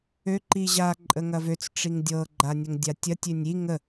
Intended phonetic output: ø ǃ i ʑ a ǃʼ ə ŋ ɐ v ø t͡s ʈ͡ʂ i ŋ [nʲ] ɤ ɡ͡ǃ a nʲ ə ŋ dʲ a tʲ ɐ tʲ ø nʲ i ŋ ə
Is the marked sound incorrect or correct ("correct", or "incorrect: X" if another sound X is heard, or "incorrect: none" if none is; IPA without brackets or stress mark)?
incorrect: dʲ